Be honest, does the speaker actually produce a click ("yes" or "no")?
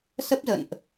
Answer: no